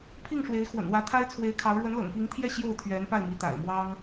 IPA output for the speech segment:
pʰ i˥˩ ŋ ʂ w e˧˥ ɪ̯ x w ə̰˨˩ n w ä˧˥ t̪ʰ a˥ ɪ̯ t͡sʰ w e˧˥ ɪ̯ kʰ ɑ˧˥ ʊ̯ ɻ w ə˧˥ n l ɤ̰˨˩ ŋ p i˧˥ ŋ t̪ʰ j ɛ˥˧ ɕ j o˥˩ ʊ̯ t̪ʰ ɥ ɛ˧˥ n p a˥˩ ɪ̯ m i˧˥ t̪ a̰˨˩ ɪ̯ m w ɑ˥ ŋ

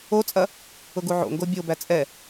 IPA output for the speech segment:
o t͡sʼ ɐ | ʊ ɡ u ʕ o̰ ŋ ɡ o bʲ o b æ t͡sʼ ɛ

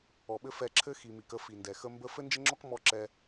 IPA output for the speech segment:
ɔ˨ ɓ ɘ˦ f ɛ˧ ǁʰ ɘ˦ x i˨ m i˨ k ə˦ f i˨ n d ɛ˨ x ə˦ m b ə˦ f ɘ˦ n d͡ʒ ə˦ ŋ͡ǁ ɔ˦ k m ɔ˦ ǁ ɛ˧

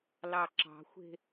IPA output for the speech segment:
l ɑ ǁ ɑ̤ xʷ e̤

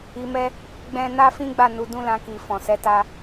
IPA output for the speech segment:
i˧ m ɛ˦ | ɡ͡b ɛ̃˦ n a˦ f ĩ˦ ɡ͡b a˦˨ n u˨˦ d ũ˦ l ã˧ k i˨ f ɔ̃˨ s ɛ˨˦ t a˧

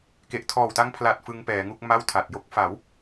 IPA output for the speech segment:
k e˨˩ ʔ tʰ ɔː˨˩ w t a˦˥ ŋ pʰ l a˨˩ t̚ f ɯ˧ ŋ p ɛː˩˦ ŋ u˥˩ k̚ m a˥˩ w tʰ a˨˩ t̚ j o˥˩ k̚ f a˩˦ w

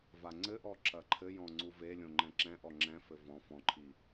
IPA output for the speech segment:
v a ŋ͡ǀ ɘ ʔ ɔ ǁ ɐ ǃʰ ɘ j ɔ̃ ŋ͡ǀ u v e lʲ õ ŋ͡ǃ ɛ̃ ǁ ɛ̃ ʔ ɔ ŋ͡ǁ ɛ̃ f ɘ v ɔ̃ f ɔ̃ ǃʰ i

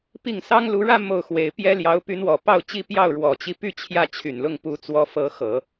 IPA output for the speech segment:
p i˥˩ ŋ s ɑ˥ ŋ l u˧˥ ɻ ä˥˧ m o˥˩ ʊ̯ x w e˧˥ ɪ̯ p j ɛ˥ l j ɑ˧˥ ʊ̯ p y˧˥ n w ɔ˨˩ p ɑ˥˧ ʊ̯ t͡ɕ i˥˧ p j ɑ˥˩ ʊ̯ ɻ w ɔ˨˩ t͡ɕ i˧˥ p y˥˧ t͡ɕʰ j ä˥˩ t͡ɕʰ y˨˩ n l ʊ˥˩ ŋ p u˧˥ t͡s w ɔ˧˥ f ɤ˧˥ x ɤ˨˩˦

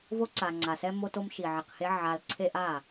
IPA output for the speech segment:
v o˦ ǀ a˨ ŋ͡ǀ a˨ s ɛ˦ m o˦ t o˦ m ʃ i˨ ʕ i˨ q h e˦ ʕ a˦ l ǀʰ e˦ ʔ a˦˨

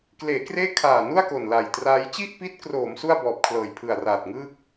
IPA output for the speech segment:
k l eː˩˦ k r eː˥˩ kʰ aː˨˩ n u˥˩ a̯ k o˨˩ n l a˨˩ j t r aː˦˥ j t͡ɕ i˥˩ ʔ p i˦˥ t̚ k r oː˩˦ m s u˥˩ a̯ b ɔː˨˩ p̚ kʰ l ɤː˨˩ j pʰ ɯ˨˩ a̯ r aː˨˩ t̚ ŋ ɯː˥˩ k̚

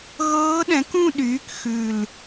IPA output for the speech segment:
ɣ ɤː˦˥ ɗ ɛ̃˩˥ k ũ˥˧ ɗ yː˩˥ k x ʉ˨˩ l

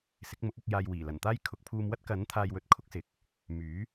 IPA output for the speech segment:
s ɪ˨˥ k̚ m ʊ˨˥ k̚ ɐ˨˥ k̚ j aː˧ j w iː˨˩ l ɐ˨˩ n t̪ aː˥ j kʰ ʊ˨ k̚ pʰ uː˧ m w ɐ˥ t̚ k ɐ˨˥ n t̪ʰ aː˧ j w ɵ˨˥ t̚ kʰ ʊ˨˥ k̚ s ɪ˨˥ k̚ | m yː˨˥

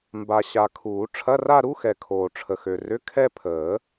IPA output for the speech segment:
m b a˨ ɕ a˨ kʰ uː˨˩˦ ʈ͡ʂʰ ɐ˧˥˧ r a˥˧ ɾ u˧˥˧ x ɛ˨ kʰ oː˨ ʈ͡ʂʰ ə˨ x ø˨ r ʏ˧˥˧ kʰ ɛ˥˧ pʰ əː˨˩˦

